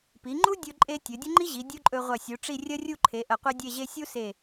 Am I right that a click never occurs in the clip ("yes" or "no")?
no